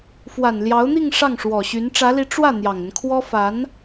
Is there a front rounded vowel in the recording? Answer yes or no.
yes